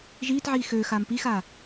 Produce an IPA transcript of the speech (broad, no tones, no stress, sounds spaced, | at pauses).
ʒ iː t ʕ iː x øː x aː m p i x aː